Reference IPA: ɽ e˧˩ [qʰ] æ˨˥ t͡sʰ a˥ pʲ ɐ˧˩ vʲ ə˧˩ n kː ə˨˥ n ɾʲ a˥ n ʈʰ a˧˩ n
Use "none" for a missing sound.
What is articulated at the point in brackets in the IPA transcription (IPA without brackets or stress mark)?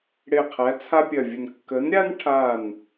qʰ